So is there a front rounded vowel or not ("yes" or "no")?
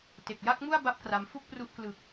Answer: no